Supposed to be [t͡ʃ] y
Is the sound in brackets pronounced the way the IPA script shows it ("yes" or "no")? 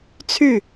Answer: no